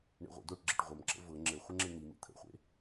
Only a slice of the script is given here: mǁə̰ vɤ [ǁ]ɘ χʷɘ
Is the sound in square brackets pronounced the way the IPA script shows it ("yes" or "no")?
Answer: no